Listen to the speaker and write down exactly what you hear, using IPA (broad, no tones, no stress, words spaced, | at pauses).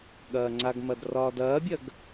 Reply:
ɠɐːŋ͡ǀaɡmɐd rɒːdɐːbʲɐɡ